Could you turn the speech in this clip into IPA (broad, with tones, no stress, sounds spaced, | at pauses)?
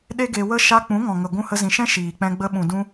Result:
ɗ e˦ ɡ e˧ w ə˦ ʃ a˧ k͡p ũ˨˦ ŋ ɔ̃˨ ŋ ə˨ ɡʷ ũ˧ h ə˧ z ĩ˨ ʃ ɛ̃˦ ʃ iː˨ k͡p ɛ̃˧ ɡ͡b ə˧ ɓ ũ˨ d ũ˧